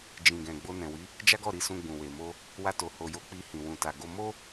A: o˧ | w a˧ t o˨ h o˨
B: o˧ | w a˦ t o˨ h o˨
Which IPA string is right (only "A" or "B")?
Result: A